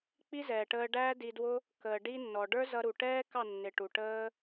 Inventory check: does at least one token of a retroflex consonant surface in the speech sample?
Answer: yes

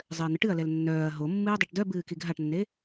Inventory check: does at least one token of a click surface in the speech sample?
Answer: no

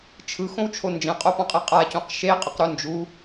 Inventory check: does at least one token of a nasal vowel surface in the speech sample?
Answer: yes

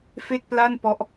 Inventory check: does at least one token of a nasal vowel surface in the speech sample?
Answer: no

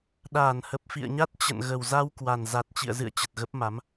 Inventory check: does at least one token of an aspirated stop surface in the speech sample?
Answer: no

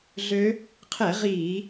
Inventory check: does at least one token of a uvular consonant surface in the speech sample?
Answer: yes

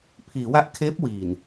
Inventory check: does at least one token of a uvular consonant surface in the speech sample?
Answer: no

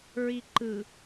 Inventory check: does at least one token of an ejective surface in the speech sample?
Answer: no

